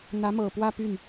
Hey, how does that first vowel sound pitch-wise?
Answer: rising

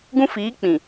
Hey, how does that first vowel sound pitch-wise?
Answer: high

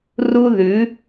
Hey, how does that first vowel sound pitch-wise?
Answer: high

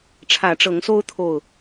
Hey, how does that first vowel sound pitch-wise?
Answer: rising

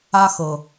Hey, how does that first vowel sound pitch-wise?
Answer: high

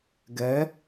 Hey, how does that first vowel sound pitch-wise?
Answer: rising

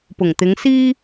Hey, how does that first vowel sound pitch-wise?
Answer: low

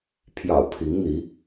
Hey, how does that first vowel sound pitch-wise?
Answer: low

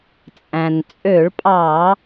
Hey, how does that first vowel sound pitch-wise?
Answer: low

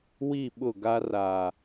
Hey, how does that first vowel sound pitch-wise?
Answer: falling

